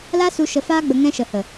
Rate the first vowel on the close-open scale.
open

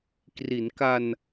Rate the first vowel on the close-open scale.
close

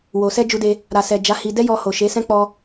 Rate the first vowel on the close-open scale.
mid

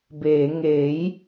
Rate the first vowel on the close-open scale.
mid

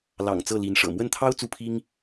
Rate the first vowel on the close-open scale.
open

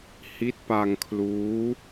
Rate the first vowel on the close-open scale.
close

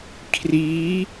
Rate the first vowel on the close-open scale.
close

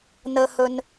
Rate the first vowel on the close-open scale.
mid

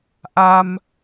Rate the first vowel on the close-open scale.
open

